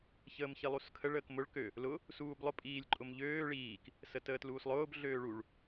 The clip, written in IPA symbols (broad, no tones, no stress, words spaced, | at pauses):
çəːmçilˠuskʰəɭ əːkmʊɭ kø | lʊ | suːblˠʊ pʼiːlʲǃʼʊmʎøː ɭiːk | sətəːtluːslˠʊːb ɮøːɭuɭ